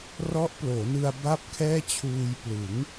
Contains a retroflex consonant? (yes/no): no